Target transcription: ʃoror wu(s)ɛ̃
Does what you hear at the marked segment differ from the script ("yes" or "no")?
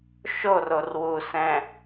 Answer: no